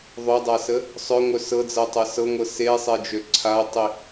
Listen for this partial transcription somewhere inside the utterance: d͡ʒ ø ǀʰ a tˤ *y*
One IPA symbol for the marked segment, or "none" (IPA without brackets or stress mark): i